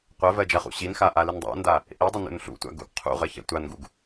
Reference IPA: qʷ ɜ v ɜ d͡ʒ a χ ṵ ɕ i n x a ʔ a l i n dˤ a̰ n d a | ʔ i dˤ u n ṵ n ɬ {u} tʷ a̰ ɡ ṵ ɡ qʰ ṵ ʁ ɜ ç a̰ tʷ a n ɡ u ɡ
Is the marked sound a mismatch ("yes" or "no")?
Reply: yes